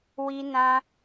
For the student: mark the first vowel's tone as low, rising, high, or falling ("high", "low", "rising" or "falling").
high